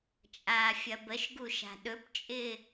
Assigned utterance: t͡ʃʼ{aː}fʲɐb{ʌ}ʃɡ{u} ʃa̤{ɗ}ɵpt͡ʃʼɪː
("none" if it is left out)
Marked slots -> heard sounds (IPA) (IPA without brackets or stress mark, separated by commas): aː, ə, u, ɗ